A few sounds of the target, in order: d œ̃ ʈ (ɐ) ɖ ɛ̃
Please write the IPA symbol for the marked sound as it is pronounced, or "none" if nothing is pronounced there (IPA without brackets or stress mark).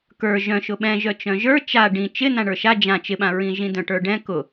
ə˞